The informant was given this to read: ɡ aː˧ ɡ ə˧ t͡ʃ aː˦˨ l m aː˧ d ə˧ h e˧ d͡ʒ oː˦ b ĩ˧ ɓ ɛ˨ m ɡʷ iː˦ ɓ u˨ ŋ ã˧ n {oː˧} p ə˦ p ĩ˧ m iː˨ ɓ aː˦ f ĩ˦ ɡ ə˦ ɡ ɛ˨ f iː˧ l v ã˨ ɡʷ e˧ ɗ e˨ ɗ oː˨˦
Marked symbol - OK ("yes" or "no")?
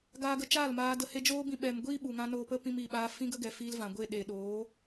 yes